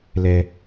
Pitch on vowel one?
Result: high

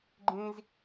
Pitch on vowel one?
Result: high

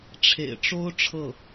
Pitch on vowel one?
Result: low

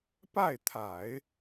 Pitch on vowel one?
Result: falling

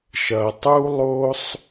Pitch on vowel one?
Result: low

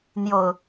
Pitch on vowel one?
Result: low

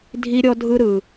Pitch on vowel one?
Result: high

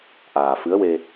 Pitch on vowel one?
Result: low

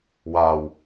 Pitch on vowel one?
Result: low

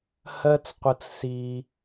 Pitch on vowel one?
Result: high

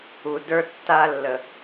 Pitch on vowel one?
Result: low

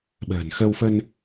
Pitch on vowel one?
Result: low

